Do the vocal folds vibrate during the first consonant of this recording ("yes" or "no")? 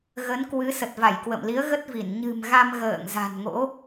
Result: yes